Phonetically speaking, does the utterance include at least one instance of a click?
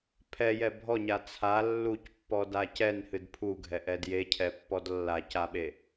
no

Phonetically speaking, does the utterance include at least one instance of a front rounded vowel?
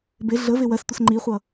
no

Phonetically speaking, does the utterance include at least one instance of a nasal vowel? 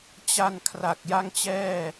no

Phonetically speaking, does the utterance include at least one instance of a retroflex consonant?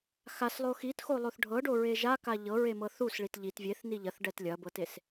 yes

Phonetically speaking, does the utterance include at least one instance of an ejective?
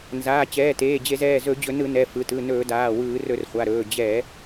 no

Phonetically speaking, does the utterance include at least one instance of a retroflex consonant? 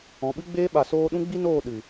no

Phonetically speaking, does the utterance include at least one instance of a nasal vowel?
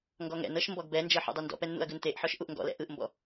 no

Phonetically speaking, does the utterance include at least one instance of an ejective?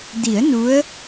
no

